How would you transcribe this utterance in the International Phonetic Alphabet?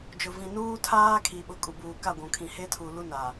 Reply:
d͡ʒʊ˨vĩ˨ nuː˦tʰaː˦ kʰi˨ɓʊ˨ kʼu˨buː˨ka˦˨ ɡʷũ˨kʰĩ˨ he˦tʰu˨lu˦ na˨

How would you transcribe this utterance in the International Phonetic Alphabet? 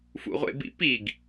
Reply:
fṵʁʷḛbḭpiɡ

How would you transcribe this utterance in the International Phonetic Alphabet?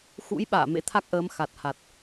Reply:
xṵ˧˥j ɓa̰ː˧˨mḛ˧˥t̪ʰa˦˥k̚ʔəː˨˦m xa˨˩t̚ha˨˩t̚

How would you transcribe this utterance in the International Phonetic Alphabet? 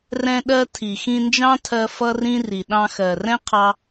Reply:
rɛ̃˧ɗɜ˧ tʰi˨xĩ˧nd͡ʒɑ̃˦tʰɜ˧ fʌ˦rĩ˦ ri˨ ɗɑ̃˧xɜ˨rɛ̃˦ qʰɑ˦

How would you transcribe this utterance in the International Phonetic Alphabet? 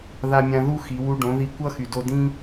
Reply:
ða˧mʲã˧ ðu˦ xi˨˦wu˦ ɖõ˨˦ði˧kʷʌ˦ xy˨do˧dĩ˦

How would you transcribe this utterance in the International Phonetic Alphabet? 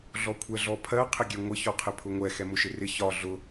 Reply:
ɮɔkʷʰɛɮɔpʰɜ qʰɪɡʲɛŋʷɪ çɔqʰɪpʰʊŋʷɛ xɛmʊʃɪrɪ çɒ ɮʊ

